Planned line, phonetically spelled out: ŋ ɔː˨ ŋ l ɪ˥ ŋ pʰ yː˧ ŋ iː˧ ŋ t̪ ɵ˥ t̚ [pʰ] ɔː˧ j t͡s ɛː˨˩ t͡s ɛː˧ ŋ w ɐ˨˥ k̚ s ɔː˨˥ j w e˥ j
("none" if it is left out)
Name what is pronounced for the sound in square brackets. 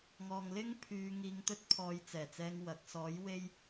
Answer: pʰ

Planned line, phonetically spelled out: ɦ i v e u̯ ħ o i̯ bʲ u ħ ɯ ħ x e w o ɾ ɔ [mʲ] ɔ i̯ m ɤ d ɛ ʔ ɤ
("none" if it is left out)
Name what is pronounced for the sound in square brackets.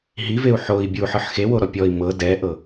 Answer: pʲ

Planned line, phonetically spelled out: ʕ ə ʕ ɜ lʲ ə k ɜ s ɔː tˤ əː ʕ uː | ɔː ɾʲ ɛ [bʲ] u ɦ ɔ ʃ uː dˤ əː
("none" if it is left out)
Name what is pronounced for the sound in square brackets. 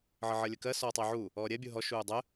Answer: bʲ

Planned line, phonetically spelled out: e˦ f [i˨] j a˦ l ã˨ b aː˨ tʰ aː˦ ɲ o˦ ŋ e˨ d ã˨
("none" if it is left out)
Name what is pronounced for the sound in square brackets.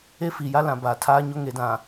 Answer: i˨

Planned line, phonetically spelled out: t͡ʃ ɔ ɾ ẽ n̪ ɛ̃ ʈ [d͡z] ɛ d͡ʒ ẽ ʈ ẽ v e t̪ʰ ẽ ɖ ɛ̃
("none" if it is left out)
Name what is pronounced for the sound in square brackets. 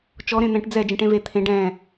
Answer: d͡z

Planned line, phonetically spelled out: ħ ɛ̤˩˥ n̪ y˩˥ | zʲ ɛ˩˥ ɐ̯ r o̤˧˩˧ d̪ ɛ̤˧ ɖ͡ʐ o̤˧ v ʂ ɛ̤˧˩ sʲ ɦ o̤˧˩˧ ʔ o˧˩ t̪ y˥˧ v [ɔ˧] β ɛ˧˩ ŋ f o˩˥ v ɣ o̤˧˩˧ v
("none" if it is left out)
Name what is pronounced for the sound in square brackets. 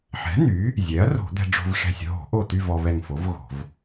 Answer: ɔ˧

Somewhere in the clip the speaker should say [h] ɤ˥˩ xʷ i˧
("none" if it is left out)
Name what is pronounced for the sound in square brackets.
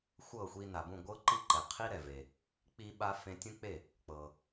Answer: xʷ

